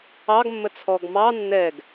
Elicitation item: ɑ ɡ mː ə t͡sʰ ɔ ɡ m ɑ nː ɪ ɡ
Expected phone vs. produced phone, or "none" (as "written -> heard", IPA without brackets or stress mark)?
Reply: ɪ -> ɛ